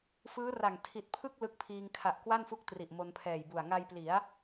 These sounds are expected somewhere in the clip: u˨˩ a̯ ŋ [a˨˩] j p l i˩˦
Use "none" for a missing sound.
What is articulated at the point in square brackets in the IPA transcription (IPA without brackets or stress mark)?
a˧